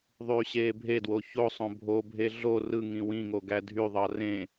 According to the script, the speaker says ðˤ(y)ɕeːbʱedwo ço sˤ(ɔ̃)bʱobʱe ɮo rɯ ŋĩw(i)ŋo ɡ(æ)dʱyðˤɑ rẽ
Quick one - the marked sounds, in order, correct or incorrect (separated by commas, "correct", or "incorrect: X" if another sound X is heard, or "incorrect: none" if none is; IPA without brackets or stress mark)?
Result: incorrect: yː, incorrect: õ, incorrect: ĩ, correct